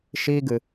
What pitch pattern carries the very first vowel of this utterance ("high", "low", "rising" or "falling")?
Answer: high